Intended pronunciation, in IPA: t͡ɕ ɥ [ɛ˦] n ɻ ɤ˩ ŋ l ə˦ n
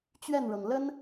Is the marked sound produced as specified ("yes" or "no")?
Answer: no